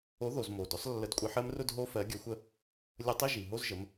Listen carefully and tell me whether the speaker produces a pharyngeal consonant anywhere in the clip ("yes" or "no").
yes